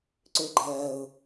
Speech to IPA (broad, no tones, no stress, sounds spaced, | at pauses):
ǀ ʏː ɡ͡ǃ ɜː ʊ̯